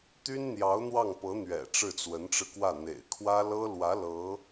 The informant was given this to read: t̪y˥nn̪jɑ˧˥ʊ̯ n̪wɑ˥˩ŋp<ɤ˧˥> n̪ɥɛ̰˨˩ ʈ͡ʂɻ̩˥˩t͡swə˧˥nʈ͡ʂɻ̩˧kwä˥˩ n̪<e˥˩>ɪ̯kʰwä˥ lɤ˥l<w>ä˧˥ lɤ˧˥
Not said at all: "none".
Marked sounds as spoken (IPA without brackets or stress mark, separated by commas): ɤ˧˥, ḛ˨˩, w